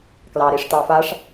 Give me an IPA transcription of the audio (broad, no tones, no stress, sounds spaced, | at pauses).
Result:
k l ɑ ɾ i ʂ t ɑ f a ʂ